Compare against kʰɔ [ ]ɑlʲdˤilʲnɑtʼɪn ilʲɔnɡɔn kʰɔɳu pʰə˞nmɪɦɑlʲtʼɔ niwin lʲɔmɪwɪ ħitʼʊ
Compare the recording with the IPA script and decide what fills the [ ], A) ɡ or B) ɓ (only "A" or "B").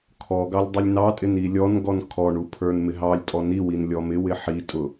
A